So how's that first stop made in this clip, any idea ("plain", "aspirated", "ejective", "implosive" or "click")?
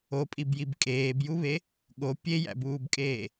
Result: ejective